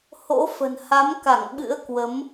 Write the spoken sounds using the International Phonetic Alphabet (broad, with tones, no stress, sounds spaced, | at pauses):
h o̰˧˥ f ə̤˨˩ n h a˨˦ m k a˧˩ ŋ ɓ ɨ̰˧˥ ə̯ k w ə˨˦ m